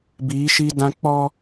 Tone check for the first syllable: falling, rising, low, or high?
rising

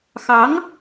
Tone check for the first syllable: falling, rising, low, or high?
rising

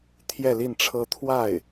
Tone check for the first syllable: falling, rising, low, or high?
falling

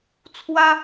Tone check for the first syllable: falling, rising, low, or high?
high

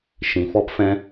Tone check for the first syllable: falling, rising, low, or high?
low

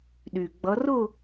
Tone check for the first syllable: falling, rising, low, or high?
low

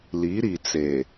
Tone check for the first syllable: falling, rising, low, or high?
rising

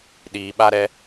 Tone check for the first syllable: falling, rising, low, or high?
low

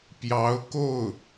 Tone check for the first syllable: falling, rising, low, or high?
rising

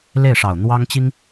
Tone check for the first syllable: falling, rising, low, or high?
falling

